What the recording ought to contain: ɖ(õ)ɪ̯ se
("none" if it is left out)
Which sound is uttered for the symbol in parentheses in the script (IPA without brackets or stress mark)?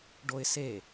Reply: o